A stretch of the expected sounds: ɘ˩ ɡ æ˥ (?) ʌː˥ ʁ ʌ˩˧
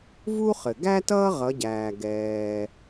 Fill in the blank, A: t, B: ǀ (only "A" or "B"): A